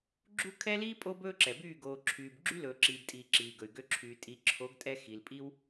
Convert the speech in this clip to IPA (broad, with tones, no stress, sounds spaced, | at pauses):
ɡ͡ǁ u˦ kʰ ɛ˦ l iː˦ pʼ o˦ b ɵː˦ ǁ ɛ˨ b yː˦˨ ɡ oː˨ ǁʰ yː˨ b ɡ͡ǁ y˦ l ɵː˨ ǁ iː˨ b tʼ iː˨ ǁ iː˨ ɡ ɵ˨ y̯ ɡ ø˧ ǁʰ yː˨ tʼ i˨ ǁʰ o˨˦ ɡ tʼ ɛ˧ x i˨ l pʼ i˦ w